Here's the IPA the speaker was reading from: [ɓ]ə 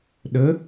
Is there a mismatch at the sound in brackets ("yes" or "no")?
yes